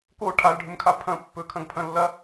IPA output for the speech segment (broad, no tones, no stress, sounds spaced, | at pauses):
k o ʈʰ a l ɖʱ ɵ m kʰ a pʰ ɐ̃ pː ɵ kʰ ɐ̃ ɡ pʰ ɐ̃ lː ɐ